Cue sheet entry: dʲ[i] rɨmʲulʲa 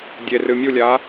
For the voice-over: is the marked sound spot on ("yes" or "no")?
no